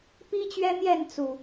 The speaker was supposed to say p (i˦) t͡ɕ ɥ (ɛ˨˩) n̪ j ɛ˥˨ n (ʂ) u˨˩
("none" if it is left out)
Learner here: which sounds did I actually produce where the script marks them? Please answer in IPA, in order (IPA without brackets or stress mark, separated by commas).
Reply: i˦, ɛ˦, t͡s